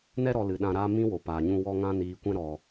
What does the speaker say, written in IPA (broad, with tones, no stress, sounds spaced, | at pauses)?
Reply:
n ɛ˧ ɾ ɔ˨ l ɨ˨ ɗ ã˧ ɾ aː˦ m ĩ˦ w o˨ p aː˨ ɲ ũ˧ w ɔ˧ ŋ ã˧ n iː˨ kʷ ɛ̃˧ ɾ ɔ˨